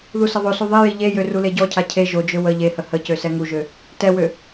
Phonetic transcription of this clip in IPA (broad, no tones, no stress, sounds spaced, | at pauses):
ð u s ə ðˤ o s u ðˤ i j i ʎ e j ø r u l e ɟ ɔ cʰ a cʰ e ʒ o d͡ʒ ø w ə ʎ e h ə h ə c ø s ɛ ŋ u ʒ ø | t ɛ w ø